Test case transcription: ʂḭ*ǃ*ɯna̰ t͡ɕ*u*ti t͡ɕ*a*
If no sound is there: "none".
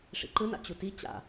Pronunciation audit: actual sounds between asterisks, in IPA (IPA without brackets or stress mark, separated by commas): ǃ, u, a̰